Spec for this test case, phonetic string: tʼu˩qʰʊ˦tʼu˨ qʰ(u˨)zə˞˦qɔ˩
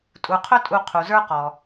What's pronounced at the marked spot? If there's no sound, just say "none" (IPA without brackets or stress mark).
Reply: u˩